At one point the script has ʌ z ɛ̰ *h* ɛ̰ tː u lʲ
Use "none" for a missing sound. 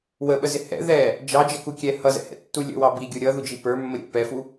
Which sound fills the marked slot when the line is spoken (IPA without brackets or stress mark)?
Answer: h